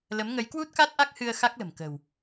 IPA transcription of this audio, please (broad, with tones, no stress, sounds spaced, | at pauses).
l ə˨˦ m ŋ ə˨˦ j k w u˦˥ t̚ k a˦˥ t̚ ʔ a˦˥ k̚ h ɨ˧ ə̯ x a˦˥ k̚ l ə̤˨˩ m k ə̤˨˩ w